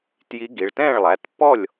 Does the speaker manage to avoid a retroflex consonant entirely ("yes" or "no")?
no